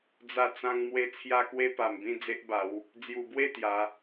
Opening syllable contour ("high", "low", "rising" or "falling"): falling